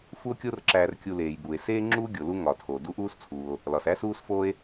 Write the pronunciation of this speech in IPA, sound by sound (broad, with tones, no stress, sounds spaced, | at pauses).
f u˦ o̯ kʲ o˦ r ǁ æː˨ r kʲ u˨ l eː˩ j b uː˩ e̯ s eː˥ ŋ͡ǁ uː˥ ɡʲ o˩ l u˦ ŋ ɒ˩ tʰ o˩ d u˦ ʔ uː˦ s t͡sʰ uː˩ o̯ | l ɒ˩ s æ˥ s uː˦ s f oː˦ e̯